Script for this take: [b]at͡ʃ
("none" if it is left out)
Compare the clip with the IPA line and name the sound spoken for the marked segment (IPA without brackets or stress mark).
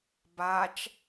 b